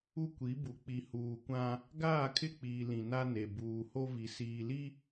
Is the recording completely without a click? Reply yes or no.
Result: yes